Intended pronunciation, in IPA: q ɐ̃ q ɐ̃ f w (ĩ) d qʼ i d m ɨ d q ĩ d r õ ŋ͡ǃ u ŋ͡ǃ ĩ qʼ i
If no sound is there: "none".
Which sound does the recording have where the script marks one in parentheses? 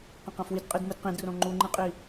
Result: i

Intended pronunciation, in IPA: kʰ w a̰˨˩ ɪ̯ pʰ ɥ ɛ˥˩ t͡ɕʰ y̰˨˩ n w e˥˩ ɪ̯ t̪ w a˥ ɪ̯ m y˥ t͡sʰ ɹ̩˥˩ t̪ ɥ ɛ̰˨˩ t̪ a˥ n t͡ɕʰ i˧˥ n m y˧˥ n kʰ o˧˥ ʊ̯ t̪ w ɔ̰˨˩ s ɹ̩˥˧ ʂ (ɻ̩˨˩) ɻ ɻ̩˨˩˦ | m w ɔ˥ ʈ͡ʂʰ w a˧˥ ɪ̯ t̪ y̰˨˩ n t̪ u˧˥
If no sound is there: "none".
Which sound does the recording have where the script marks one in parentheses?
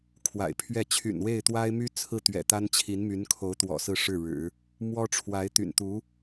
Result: ɻ̩˥˩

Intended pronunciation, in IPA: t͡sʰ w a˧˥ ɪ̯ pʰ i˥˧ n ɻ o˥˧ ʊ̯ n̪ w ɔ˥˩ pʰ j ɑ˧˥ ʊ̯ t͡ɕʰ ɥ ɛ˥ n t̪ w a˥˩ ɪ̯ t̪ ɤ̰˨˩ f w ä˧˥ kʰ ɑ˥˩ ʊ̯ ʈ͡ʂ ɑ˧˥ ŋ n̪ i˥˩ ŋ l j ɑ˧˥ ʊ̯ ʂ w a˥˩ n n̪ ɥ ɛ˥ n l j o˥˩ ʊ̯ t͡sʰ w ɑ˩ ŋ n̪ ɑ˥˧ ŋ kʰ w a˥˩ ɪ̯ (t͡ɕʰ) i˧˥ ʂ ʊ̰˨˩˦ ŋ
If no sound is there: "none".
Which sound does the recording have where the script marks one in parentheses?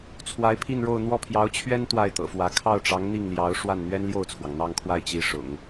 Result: t͡ɕ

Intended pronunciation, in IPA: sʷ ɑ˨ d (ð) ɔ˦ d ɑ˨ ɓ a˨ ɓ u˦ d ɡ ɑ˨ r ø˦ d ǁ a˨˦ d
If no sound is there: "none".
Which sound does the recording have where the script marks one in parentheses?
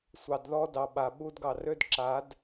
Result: ð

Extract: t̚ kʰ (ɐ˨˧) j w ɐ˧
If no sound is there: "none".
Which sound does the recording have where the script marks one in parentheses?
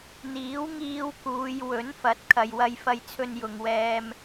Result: ɐ˨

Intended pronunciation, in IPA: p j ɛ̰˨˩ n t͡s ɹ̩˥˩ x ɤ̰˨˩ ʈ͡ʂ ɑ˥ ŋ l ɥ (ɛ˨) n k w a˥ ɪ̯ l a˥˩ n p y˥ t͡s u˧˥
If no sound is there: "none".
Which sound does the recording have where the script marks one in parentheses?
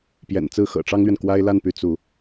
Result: ɛ˨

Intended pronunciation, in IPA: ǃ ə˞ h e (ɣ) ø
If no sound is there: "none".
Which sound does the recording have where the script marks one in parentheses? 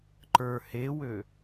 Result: w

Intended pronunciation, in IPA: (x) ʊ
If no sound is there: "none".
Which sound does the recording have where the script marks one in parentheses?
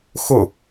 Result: x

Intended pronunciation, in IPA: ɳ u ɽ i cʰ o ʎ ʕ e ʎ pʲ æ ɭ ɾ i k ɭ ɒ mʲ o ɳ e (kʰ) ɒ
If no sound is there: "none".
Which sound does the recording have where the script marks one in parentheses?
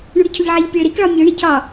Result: cʰ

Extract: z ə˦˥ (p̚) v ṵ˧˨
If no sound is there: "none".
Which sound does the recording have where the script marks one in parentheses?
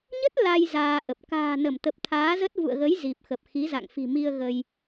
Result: t̚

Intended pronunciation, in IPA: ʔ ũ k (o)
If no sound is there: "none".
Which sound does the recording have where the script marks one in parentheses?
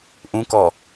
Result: ɔ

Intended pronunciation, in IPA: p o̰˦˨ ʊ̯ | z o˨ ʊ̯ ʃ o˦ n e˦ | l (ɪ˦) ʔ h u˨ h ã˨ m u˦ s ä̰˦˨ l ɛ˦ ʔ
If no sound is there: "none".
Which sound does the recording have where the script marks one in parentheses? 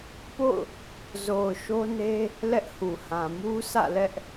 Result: ɛ˦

